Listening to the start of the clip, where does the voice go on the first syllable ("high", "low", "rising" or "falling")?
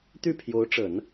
falling